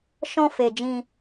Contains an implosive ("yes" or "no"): no